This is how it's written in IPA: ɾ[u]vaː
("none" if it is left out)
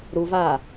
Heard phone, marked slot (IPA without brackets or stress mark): u